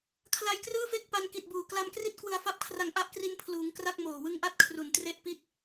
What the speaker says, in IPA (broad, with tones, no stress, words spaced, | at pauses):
kʰla˧jkrɯː˥˩fe˥˩k̚ pa˧nki˨˩t̚buː˨˩ kla˧mkri˥˩t̚ kwɯ˧a̯fa˦˥p̚kʰra˧ŋ ʔa˦˥ʔkri˧npʰluː˩˦ŋ kra˥˩k̚ moː˨˩wɯ˦˥ŋʔa˥˩t̚kʰru˨˩n tre˥˩ʔpi˥˩t̚